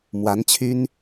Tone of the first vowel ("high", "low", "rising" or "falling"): rising